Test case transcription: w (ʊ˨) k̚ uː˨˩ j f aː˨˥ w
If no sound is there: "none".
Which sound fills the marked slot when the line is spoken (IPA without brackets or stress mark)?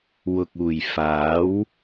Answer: ʊ˨